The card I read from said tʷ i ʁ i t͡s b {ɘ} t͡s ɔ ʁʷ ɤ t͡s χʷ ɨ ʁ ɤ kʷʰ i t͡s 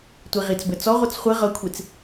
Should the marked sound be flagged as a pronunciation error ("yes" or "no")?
no